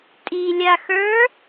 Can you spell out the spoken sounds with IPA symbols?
tʼ i lʲ a x ə˞

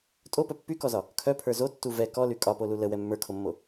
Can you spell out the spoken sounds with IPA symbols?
tʼ o p œ pː y k ɔ z ɒ | kʰ œ pʰ ə˞ z o tː u v ɛ k ɔ l y kʼ ɒ p o l u l ə w ɛ mː ə˞ kʰ o mː o

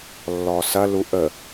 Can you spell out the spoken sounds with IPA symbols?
lː ɔ s ɐ l u ʔ ə

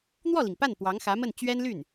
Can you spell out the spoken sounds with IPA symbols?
n̪ w ɔ˥˩ l i˩ ŋ p a˥˩ n p w ɑ˧˥ ŋ x ä˧˥ m ə˥˩ n t͡ɕ ɥ ɛ˥ n l y˥˩ n

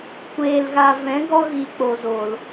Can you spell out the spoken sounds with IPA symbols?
kʷ eː˨ l ɣ a˨ v ɛ̃˨˦ ɡ ɔ˧ ɣ i˨ k͡p o˨ z o˨ l

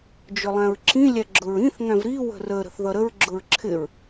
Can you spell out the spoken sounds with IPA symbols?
d͡ʒ ʊ lˠ æ̃ ɹ ǁ ĩ lʲ æ ɡ͡ǁ ʊ ɹ ĩ θ ŋ æ̃ v ɾ i w ə̤ r ə ɾ ə̤ θ ð ʌ ɾ ə ɹ ɡ͡ǁ ʊ ɹ ǁʰ ɪ ɹ

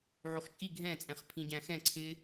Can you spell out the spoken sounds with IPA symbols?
ʕ u χ t͡ʃʼ i ɡʱ ɛ̃ t͡sʼ ɛ̃ χ pʰ ĩ ɟ æ̃ x ɛ̃ ǀʰ ɪ

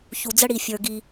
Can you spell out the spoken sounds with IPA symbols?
ç u˨ d͡z ə˦ ɽ i˨ fʲ ə˞˨ ɡ i˧

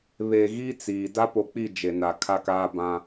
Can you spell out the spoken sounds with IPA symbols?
β e˨ ɣ iː˦ t͡s iː˨ d a˦ p o˨ k͡p i˦˨ d͡ʒ e˨ n a˨ kʰ a˦ k aː˦ b ã˦

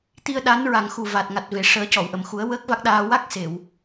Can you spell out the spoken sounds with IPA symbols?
t̪ i˧ ə̯ ɗ a˧˥ n ɹ a˨˩ ŋ x u˨˩ v a˨˩ t̚ ŋ a˨˩ t̚ v e˨˩˨ ʂ əː˨˩˦ c ɔ˨˩˨ w ʔ ə˨˩˨ m x u˨˩˦ ə̯ w əː˦˥ k̚ v a˦˥ k̚ ɗ aː˧ w a˦˥ k̚ s e˨˩˨ w

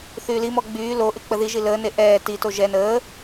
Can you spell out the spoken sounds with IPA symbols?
θ yː l i m ɔ ɡ͡b yː l o ʔ y k͡p ə ð i ʒ i l əː n e ʔ ɛː t i t o ʒ ɛ n əː

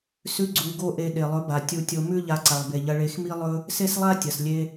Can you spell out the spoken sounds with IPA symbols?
s ʉ˦ ɡ͡ǀ u˧ ɡ o˦ ʔ e˧ ɗ e˨ lˠ ɵ˨˦ b a˨ tʲ u˧ tʲ o˧ m ʉ˦ ʎ a˧ ǀ a˨ lˠ b e˨ ʎ ɐ˧ ɭ e˧ x m i˦ lˠ ɵ˦ | s e˦ s lˠ a˦ tʲ ɐ˨ s lʲ e˧

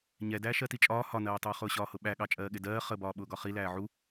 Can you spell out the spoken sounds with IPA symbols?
ɲ ɛ d æː ʃ ɜ t i t͡ʃʼ ɒː h ɒ n ɜː tˤ uː χ ʊː ɕ ɒː h ʊ ɓ æ ɠ ɑ t͡ʃʼ ɜː ɠ ɪ d ɜː χ ə b ɒː ɓ ʊː ɡ ɒ χ i l æː ʕ u

